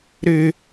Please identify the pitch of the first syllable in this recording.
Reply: high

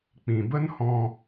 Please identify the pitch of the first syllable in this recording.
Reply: low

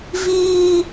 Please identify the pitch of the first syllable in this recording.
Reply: high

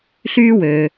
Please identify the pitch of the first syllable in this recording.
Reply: high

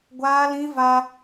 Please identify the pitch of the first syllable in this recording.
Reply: high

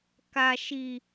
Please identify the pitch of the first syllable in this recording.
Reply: high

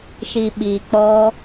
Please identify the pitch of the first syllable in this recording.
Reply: low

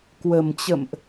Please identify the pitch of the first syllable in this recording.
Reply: low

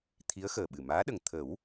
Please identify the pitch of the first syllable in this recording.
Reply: rising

